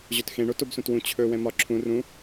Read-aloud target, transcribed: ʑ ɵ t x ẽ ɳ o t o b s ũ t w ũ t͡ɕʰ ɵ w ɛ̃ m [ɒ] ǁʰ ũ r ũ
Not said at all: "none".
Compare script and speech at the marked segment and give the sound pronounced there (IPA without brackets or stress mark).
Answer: ɒ